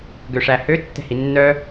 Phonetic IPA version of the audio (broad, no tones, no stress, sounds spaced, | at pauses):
ɡ ø ʂ æ h ø tː ɛ̤ h i nː œ